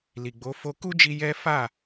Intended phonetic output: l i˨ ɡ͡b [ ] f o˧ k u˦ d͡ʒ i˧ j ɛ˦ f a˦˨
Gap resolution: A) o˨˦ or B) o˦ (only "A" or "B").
A